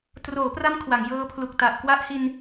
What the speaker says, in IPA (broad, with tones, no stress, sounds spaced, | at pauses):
t r oː˩˦ p r a˦˥ m kʰ w a˩˦ ŋ j ɤː˦˥ pʰ l u˨˩ k̚ t a˨˩ ʔ k w a˦˥ ʔ h i˧ n